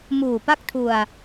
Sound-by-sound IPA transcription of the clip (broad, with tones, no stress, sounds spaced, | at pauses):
m uː˨˩ p a˥˩ k̚ tʰ u˧ a̯